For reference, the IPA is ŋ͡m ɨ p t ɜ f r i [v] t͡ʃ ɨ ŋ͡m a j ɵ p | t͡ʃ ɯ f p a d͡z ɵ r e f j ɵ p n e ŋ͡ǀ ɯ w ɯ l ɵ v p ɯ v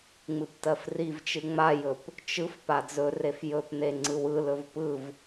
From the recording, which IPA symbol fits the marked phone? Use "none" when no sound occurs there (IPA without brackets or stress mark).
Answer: v